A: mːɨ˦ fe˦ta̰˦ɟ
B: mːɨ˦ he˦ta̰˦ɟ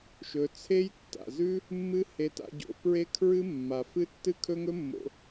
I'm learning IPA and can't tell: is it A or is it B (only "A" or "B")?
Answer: B